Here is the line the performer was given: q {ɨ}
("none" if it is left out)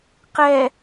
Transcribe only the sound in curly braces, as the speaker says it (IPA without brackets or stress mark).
ɛ